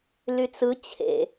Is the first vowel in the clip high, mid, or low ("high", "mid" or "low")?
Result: high